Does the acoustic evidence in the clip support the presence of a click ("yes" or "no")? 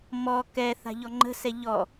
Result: yes